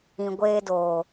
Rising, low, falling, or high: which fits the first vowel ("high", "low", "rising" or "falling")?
low